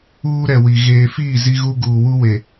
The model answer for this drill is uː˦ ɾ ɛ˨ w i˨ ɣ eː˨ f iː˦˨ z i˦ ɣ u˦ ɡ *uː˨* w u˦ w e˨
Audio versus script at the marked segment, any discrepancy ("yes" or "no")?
no